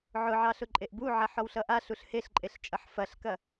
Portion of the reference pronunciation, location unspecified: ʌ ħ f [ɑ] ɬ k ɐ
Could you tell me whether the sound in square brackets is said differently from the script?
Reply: yes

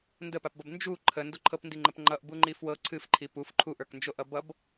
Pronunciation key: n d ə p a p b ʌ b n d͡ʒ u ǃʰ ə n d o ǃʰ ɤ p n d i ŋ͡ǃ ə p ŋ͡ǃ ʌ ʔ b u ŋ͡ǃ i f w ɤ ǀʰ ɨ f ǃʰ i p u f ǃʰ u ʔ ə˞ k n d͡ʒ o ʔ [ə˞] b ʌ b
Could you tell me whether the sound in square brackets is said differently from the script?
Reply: yes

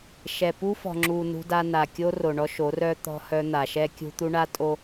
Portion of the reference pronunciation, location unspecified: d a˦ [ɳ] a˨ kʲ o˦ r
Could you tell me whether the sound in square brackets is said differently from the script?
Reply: yes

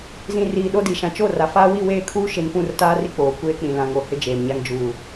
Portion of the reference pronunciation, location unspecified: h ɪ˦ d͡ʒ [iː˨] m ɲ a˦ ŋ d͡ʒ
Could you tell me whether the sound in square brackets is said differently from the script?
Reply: yes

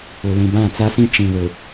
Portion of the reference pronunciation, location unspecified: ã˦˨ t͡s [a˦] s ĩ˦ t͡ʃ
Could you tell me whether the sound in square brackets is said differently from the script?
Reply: no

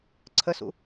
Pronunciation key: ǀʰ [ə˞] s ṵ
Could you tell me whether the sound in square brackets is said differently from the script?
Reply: yes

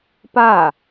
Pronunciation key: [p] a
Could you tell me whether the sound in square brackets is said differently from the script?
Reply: no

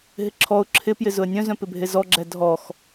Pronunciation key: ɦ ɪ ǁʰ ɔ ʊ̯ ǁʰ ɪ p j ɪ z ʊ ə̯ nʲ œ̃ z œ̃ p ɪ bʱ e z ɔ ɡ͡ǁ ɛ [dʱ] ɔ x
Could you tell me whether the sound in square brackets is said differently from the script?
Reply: no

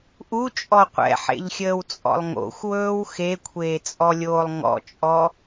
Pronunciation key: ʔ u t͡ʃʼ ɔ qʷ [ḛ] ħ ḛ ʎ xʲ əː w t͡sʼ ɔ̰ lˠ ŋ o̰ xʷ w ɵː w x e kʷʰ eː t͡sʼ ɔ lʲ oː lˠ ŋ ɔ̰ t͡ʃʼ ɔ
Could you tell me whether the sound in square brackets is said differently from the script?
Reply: yes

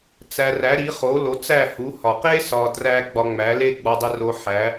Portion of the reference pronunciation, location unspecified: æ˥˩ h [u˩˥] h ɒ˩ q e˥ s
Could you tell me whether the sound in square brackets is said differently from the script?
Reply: no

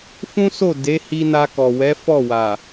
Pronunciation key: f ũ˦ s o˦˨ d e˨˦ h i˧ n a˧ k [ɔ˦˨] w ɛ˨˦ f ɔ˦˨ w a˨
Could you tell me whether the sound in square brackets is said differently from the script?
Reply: yes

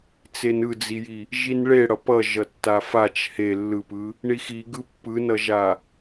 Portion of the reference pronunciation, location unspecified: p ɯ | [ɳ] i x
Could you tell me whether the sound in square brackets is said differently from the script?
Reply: no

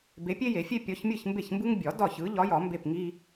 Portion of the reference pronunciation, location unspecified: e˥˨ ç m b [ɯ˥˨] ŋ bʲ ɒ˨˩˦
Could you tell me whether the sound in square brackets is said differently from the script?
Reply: yes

